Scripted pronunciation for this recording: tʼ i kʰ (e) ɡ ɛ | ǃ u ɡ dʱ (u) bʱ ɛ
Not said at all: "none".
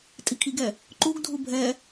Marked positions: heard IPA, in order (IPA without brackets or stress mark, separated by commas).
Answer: i, u